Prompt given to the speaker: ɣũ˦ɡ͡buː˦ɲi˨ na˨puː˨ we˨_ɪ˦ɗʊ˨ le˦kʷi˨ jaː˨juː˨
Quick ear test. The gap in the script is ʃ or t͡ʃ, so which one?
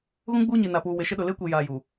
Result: ʃ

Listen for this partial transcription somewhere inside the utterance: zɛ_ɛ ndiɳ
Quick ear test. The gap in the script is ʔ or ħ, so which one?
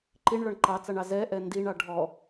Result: ʔ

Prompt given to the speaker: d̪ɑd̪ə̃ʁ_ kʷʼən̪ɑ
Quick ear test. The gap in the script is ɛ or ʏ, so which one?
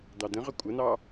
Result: ʏ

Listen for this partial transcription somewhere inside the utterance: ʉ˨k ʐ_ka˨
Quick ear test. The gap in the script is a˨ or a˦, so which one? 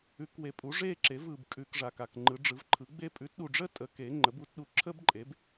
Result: a˨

